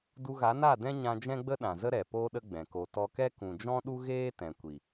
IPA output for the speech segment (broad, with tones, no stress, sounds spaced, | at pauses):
d u˧ ɣ a˨˦ n a˦˨ d ɛ̃˦ ɲ ã˧ d͡ʒ ɛ̃˦ ɡ͡b ə˦ ɗ ã˨ z ə˦ ɾ ɛ˨ p oː˧ ɗ ə˧ ɡ͡b ɛ̃˨ k o˧ t ɔ˧ k ɛ˦ k ũ˨ d͡ʒ ɔ̃˦ ɗ u˦ ɣ eː˦ t ɛ̃˨ kʷ i˨